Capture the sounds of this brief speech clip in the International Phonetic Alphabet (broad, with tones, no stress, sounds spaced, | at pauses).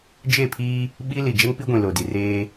d͡ʒ e˦˨ pʰ iː˦ | ɓ i˦ l i˨ d͡ʒ ɛ˦ ŋ p i˦ ɡʷ ĩ˨ l o˨ d i˨ r eː˦